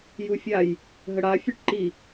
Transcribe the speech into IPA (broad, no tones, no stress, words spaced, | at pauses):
jufʲaj | ɦəɽa fʲøʈǃi